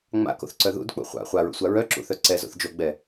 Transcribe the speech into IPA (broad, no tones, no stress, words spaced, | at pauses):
ŋ͡ma̰ko̰θǀœ ðṵdk͡pṵ χʷa̰ χʷaɹṵsʷa ɹœǁṵθœ ǀɛzo̰θ d͡ʒoɡ͡bɛ